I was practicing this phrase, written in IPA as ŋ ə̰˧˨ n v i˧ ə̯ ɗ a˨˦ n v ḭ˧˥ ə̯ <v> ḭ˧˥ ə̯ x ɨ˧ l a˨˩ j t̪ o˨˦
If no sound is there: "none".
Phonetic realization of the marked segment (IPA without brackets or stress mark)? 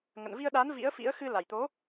f